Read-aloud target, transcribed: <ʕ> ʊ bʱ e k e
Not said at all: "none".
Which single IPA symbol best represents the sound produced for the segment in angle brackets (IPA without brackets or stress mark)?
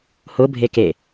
h